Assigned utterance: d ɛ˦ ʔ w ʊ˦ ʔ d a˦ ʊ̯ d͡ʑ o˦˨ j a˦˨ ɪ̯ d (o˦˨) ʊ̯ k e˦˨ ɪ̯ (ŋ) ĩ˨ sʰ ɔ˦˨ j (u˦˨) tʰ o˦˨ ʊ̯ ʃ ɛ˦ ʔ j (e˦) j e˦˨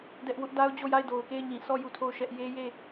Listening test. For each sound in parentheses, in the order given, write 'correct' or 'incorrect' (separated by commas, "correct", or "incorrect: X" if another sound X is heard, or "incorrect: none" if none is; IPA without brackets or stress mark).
incorrect: o˨, incorrect: ɲ, correct, correct